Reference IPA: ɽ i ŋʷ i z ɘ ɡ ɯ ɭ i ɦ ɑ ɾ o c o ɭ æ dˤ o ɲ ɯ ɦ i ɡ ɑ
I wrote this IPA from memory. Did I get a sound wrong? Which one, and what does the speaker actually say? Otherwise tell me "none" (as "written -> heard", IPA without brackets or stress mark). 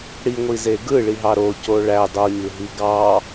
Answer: ɘ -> e